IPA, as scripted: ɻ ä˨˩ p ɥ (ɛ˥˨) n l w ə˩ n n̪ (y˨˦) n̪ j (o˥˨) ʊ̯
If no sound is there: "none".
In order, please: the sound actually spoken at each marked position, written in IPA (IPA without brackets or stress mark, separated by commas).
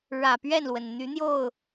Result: ɛ˥˨, y˨˦, o˥˨